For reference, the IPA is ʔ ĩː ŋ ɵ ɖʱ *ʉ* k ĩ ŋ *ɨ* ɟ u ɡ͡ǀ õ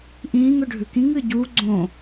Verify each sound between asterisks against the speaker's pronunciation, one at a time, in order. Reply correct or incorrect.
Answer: correct, correct

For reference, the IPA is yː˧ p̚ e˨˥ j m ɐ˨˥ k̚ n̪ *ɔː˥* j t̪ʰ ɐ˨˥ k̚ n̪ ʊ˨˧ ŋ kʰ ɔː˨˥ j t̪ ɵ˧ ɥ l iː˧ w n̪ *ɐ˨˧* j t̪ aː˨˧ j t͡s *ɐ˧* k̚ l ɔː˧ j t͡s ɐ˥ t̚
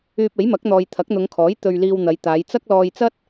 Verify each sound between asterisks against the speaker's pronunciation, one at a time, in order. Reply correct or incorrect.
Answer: incorrect: ɔː˨, correct, incorrect: ɐ˥

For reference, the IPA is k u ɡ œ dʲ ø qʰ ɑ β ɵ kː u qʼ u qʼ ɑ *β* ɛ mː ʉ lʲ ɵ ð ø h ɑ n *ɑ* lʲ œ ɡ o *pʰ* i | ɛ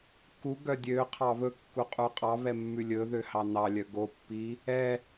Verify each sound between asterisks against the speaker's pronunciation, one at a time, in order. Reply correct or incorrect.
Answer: correct, correct, incorrect: pː

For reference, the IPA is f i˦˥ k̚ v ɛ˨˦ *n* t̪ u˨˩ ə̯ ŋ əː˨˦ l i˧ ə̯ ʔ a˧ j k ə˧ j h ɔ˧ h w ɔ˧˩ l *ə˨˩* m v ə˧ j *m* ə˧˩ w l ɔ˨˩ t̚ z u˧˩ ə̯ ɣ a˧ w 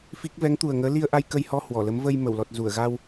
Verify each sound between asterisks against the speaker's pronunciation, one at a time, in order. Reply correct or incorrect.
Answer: incorrect: ŋ, incorrect: ə˨˦, correct

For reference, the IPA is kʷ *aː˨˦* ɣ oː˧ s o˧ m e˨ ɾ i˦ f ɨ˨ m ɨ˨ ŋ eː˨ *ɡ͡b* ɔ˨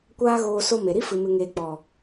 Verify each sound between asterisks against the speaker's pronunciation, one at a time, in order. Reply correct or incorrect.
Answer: incorrect: aː˦, incorrect: k͡p

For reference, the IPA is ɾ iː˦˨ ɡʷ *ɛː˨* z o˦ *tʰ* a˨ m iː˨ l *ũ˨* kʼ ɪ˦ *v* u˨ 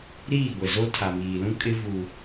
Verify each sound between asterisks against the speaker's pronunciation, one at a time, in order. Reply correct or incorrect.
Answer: incorrect: ɛ˨, correct, incorrect: ũ˦, correct

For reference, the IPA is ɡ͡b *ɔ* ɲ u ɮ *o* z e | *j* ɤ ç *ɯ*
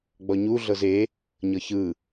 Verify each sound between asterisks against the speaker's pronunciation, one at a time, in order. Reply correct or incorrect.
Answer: correct, incorrect: ɤ, incorrect: ɲ, correct

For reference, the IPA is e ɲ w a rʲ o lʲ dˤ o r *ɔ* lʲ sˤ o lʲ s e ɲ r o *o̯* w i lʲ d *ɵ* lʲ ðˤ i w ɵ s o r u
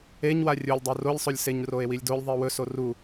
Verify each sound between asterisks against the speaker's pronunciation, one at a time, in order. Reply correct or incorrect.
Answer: incorrect: o, incorrect: e̯, incorrect: o

